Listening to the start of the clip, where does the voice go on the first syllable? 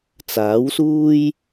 rising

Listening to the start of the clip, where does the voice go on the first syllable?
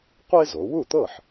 high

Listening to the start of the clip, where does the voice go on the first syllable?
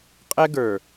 high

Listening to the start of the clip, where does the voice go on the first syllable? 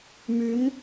rising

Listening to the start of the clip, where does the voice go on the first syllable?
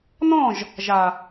falling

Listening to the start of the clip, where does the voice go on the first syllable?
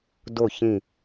falling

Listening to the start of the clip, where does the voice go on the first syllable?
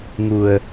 low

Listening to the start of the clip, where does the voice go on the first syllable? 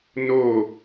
falling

